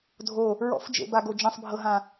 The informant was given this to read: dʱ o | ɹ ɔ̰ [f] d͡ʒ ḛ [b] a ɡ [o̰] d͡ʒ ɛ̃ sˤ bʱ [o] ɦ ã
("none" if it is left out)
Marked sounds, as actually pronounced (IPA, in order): f, b, o, ɤ

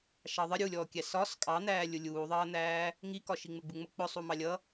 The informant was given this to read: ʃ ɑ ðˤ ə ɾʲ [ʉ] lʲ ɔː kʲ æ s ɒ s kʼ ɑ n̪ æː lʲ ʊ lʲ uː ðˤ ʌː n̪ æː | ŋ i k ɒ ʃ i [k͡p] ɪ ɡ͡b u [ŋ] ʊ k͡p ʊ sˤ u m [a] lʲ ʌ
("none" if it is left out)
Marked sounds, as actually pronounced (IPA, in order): u, ŋ͡m, ŋ͡m, ɑ

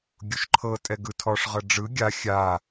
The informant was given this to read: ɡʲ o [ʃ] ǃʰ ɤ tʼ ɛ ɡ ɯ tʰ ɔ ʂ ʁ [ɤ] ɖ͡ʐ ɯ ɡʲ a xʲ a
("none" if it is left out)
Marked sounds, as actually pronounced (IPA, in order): ʃ, ɤ

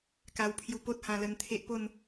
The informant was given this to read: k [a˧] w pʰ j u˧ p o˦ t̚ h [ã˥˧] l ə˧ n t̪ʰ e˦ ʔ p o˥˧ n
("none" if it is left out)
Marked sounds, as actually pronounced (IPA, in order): a˧, ã˧

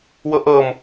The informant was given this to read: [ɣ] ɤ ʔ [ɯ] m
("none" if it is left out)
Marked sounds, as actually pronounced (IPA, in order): w, ɤ

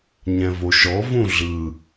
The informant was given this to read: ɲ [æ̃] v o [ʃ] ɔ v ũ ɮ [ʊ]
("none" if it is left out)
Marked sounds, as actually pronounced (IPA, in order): ɛ̃, ʃ, ɯ

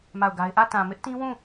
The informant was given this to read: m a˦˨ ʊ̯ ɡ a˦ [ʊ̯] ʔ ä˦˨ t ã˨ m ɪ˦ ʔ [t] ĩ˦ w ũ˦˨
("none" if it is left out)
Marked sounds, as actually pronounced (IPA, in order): ɪ̯, t

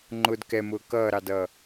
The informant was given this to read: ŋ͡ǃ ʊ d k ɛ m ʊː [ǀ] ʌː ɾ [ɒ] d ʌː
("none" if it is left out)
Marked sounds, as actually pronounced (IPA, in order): k, ɑ

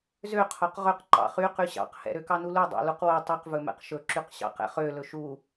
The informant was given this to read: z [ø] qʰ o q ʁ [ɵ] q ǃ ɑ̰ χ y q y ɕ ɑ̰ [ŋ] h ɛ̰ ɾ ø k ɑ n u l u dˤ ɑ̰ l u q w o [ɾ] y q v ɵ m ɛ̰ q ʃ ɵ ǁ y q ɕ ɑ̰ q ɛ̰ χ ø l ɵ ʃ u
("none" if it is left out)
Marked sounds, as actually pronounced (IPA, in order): ø, ɵ, q, tˤ

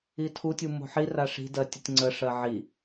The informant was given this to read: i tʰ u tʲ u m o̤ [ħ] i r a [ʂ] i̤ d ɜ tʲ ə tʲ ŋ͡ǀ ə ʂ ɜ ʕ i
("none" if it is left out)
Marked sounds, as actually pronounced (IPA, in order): ħ, ʂ

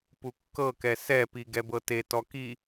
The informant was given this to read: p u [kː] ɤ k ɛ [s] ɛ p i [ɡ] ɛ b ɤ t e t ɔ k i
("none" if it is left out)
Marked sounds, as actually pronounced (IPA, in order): kː, s, ɡ

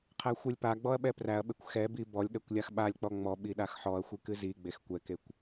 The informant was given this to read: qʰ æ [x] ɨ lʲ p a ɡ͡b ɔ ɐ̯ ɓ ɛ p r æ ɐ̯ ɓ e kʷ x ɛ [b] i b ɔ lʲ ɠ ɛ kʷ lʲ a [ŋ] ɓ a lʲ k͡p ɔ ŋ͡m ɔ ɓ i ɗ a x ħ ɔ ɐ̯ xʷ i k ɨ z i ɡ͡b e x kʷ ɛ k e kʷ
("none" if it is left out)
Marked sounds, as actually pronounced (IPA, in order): xʷ, b, x

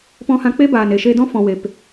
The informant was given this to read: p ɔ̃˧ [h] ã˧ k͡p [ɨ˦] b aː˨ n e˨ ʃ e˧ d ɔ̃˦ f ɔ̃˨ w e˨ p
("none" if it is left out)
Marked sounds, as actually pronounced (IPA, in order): h, e˦

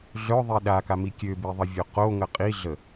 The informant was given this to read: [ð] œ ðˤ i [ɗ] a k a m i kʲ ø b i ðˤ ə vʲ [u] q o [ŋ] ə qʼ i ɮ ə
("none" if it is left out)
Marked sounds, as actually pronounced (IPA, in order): ɮ, ɗ, o, ŋ

